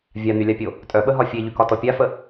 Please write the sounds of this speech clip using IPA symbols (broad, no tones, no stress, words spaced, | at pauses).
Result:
vʲan̪ylʲapʲo | tʼœɓəɦɒ fʲeʎykɒtɔ pʲafə